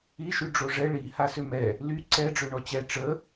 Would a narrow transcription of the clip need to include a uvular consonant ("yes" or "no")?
no